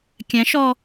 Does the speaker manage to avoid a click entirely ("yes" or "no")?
yes